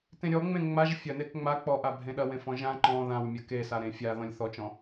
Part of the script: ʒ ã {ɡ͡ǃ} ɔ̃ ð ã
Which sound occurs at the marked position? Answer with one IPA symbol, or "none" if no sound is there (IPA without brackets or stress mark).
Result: ǃ